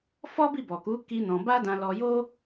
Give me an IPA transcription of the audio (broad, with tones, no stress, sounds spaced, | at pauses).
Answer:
f ɔ˦ b i˦˨ b ɔ˨ k u˨˦ k i˦ n ɔ̃˧ b a˦ d ã˧ l ɔ˧ j o˦